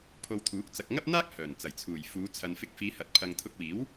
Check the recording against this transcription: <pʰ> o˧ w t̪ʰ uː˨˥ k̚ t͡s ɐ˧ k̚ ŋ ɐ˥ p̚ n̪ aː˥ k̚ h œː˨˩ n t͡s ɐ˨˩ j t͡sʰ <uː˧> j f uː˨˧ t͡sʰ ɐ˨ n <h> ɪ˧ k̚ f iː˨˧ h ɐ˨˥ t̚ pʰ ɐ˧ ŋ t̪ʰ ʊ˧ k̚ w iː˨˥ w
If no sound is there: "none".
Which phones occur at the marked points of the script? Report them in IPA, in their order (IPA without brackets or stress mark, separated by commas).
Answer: pʰ, uː˨˩, f